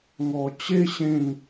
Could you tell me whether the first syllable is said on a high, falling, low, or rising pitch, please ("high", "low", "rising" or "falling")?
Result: low